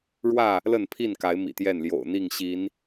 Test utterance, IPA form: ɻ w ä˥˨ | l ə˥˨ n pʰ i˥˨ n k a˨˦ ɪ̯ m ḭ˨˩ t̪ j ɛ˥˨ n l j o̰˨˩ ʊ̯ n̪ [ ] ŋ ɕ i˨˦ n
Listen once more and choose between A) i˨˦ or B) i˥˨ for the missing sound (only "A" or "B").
B